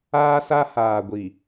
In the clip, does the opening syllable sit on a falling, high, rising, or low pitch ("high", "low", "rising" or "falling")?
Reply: high